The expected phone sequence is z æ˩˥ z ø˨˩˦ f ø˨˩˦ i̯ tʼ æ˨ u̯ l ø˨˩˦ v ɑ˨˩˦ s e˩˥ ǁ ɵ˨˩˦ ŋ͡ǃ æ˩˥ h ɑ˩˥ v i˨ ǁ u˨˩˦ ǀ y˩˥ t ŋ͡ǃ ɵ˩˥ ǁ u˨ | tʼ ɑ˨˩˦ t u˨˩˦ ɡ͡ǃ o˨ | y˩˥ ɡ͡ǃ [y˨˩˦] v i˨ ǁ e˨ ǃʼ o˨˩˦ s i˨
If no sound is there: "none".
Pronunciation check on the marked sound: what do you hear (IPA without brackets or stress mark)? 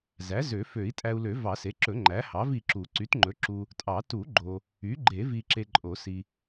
e˨˩˦